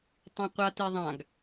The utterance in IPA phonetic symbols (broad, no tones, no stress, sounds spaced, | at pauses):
tˤ õ qʷ a t i ðˤ ã ɡ